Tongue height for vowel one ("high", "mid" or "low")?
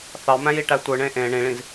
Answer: low